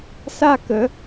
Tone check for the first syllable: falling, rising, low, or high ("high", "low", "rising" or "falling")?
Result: high